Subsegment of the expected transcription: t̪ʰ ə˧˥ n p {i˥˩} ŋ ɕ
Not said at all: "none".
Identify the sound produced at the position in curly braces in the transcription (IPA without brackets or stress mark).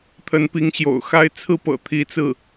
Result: i˧˥